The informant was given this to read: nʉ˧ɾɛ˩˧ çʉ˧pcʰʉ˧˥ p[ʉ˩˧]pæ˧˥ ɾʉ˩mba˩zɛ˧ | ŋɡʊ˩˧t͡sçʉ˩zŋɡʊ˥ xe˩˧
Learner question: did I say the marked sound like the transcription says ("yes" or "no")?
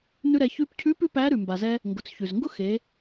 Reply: no